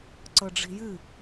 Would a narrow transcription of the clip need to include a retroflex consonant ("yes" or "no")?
yes